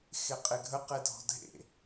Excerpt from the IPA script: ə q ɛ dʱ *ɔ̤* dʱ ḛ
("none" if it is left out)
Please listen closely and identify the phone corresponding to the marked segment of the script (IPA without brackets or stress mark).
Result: ɔ̤